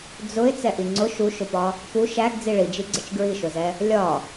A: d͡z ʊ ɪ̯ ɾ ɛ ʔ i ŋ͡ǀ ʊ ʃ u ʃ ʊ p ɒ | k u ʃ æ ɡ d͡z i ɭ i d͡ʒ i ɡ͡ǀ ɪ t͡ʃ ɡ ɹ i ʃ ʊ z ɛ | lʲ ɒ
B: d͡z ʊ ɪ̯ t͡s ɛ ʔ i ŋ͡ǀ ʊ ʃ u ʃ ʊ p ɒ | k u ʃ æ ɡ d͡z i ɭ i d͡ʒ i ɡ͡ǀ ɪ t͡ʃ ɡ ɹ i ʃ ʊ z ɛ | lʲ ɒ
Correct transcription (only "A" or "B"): B